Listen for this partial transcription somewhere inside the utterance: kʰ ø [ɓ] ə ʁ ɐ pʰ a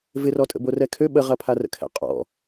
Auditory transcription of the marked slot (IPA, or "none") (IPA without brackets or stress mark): ɓ